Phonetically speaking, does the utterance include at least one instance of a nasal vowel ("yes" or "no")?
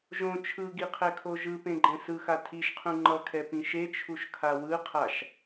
yes